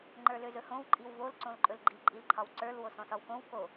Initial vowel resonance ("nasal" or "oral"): oral